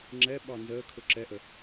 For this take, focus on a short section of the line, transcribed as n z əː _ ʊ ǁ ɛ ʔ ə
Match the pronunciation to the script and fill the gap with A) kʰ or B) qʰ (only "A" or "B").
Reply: A